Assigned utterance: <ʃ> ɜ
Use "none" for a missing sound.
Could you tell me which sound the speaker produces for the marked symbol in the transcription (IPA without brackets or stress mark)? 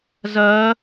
z